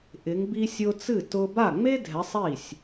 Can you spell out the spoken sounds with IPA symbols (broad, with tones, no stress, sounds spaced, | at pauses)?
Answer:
ʔ ɪ˨˦ ŋ b i˥ sʲ ʊ˥ t͡s ɨ˥˩ t ʊ˥ b a˥˩ ŋ͡m e˥ dʱ ɛ˨˦ sˤ i˥˩ sʲ